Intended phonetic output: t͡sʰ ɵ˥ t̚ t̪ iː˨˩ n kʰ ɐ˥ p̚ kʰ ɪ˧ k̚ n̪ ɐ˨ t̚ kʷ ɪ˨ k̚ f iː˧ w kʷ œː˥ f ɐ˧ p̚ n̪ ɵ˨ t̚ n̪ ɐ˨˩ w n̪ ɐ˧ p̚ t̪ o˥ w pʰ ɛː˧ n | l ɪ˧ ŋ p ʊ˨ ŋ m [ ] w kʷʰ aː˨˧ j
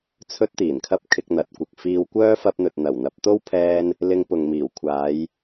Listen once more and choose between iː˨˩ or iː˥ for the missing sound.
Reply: iː˨˩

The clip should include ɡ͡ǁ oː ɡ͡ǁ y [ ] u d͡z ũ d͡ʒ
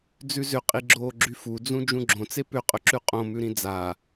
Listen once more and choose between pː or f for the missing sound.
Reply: f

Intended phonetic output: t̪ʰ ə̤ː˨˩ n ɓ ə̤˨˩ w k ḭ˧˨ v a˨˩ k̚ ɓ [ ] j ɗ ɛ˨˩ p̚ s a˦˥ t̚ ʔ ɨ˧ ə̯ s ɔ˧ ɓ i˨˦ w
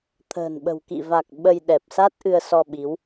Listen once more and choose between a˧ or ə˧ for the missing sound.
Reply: ə˧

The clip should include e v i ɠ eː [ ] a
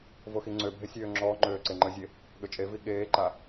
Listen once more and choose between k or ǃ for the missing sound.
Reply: ǃ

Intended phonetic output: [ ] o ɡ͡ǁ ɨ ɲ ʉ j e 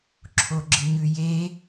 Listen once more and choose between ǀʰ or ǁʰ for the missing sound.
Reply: ǁʰ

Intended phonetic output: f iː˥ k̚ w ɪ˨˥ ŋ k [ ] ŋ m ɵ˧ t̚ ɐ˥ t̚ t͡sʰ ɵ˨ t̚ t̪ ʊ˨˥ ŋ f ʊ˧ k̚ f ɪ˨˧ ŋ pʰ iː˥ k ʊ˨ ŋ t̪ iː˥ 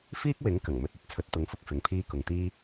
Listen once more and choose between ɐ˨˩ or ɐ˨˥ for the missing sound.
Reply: ɐ˨˩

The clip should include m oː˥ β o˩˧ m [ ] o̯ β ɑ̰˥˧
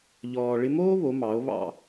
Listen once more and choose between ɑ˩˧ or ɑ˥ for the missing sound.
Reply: ɑ˩˧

